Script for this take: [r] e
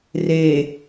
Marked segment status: correct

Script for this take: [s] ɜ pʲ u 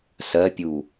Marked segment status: correct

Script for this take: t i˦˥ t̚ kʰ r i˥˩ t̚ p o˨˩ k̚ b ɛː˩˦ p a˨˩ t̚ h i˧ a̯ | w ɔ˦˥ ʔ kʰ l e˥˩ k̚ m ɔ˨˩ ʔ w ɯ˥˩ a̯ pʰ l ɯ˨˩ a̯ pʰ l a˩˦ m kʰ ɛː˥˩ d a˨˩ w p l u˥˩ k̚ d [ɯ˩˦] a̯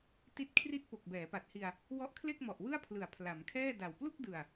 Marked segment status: incorrect: ɯ˨˩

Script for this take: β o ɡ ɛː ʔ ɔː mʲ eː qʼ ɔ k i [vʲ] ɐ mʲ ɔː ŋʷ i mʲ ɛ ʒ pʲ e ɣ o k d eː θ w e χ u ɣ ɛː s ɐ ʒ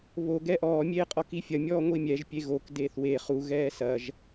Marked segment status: incorrect: fʲ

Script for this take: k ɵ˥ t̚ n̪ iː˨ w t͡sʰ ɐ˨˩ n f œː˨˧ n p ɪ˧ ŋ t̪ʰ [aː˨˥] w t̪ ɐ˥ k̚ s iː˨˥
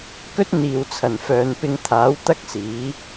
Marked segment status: correct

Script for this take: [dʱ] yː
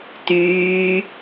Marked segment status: incorrect: t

